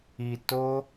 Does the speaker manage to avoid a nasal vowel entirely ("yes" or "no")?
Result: yes